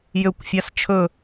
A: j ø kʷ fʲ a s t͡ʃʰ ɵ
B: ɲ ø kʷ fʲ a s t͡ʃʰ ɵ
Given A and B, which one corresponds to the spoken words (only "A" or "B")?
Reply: A